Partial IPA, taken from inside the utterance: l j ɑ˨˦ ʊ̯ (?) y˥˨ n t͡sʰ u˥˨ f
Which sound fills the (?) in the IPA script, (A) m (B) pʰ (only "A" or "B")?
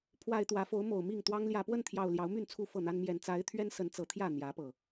A